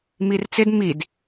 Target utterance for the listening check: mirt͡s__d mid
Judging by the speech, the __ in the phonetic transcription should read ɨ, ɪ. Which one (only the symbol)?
ɪ